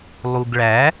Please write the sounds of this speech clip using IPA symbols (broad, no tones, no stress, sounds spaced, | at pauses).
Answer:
lˠ u ɡ ɭ æ